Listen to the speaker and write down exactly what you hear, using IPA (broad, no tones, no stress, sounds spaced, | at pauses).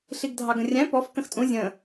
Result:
ɬ i ɡ dʱ ɑ ɡ ə̃ rʲ æ̃ p ɔ f k ə̃ x tʼ ũ zʲ ə̃